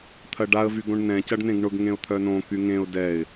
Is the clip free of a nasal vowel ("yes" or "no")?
no